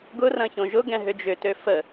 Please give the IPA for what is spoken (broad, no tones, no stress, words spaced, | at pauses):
ɡʊrɐ̃ çõʒʊɡɛ̃ ɦʏd͡ʒʏtø fə